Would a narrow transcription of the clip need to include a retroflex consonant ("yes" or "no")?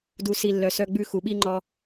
no